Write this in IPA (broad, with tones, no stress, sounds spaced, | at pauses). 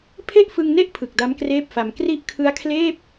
pʰ e˥˩ ʔ f ɯ˧ ŋ n e˥˩ ʔ pʰ ɯ˨˩ k̚ d a˦˥ m k r eː˥˩ p̚ f a˧ m k r i˦˥ ʔ kʰ ɯ˦˥ a̯ kʰ l eː˥˩ p̚